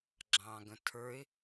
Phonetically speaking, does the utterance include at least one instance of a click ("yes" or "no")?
yes